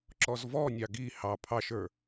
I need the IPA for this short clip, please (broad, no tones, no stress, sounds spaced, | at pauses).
ǁ ɔ z v ɔ nʲ ɑ ɡ i h ɑ pʰ ɑ ʃ ə˞